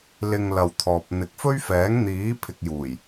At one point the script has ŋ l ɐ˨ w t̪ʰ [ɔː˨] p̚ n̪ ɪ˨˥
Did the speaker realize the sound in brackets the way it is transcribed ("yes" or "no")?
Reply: yes